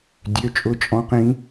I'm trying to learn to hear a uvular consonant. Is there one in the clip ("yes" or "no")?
yes